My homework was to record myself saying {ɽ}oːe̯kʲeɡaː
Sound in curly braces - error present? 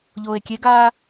yes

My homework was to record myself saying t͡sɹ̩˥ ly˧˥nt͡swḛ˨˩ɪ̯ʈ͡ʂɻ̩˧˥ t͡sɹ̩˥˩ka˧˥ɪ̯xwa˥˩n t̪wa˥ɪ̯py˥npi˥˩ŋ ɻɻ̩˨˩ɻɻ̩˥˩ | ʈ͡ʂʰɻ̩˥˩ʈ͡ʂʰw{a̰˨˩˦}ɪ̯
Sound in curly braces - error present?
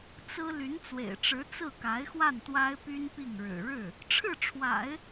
no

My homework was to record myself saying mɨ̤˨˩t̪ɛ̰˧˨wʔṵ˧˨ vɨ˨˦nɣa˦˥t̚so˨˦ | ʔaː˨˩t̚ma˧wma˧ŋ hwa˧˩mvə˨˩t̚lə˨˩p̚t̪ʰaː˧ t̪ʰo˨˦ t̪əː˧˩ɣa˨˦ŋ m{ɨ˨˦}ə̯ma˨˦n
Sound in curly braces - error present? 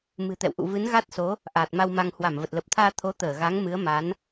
no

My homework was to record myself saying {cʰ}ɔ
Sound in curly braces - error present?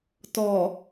yes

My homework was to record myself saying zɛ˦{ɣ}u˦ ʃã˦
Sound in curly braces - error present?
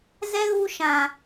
no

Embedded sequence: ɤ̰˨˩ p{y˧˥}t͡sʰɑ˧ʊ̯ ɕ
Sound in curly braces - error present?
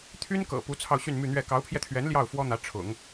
yes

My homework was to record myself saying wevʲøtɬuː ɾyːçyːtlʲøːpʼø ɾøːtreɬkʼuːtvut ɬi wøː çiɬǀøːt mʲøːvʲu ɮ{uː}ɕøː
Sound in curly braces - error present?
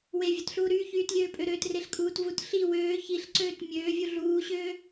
no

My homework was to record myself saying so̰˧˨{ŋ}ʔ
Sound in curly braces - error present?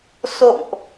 no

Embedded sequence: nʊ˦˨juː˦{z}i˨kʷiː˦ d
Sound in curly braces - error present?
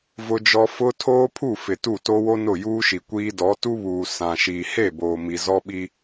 yes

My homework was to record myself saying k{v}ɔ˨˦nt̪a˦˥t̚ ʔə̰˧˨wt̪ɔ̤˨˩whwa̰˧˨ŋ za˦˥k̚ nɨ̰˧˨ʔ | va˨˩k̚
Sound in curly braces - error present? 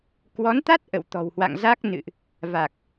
yes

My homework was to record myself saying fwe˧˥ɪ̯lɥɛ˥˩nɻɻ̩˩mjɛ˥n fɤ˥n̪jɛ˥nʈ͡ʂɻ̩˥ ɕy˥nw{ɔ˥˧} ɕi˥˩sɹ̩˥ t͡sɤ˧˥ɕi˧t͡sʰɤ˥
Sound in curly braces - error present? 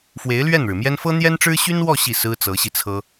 no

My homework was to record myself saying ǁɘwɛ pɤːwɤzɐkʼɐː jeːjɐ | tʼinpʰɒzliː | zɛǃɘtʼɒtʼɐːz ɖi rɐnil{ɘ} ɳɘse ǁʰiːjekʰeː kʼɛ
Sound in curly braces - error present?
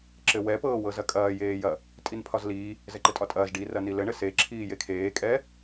no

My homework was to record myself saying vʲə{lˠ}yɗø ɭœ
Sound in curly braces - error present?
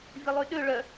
no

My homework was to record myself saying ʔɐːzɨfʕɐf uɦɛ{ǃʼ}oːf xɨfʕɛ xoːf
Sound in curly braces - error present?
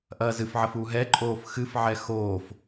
no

